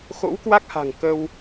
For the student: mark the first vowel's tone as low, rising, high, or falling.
rising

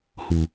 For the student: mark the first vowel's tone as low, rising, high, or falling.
low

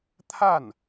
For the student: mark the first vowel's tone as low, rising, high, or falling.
falling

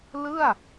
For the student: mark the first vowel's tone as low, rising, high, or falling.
falling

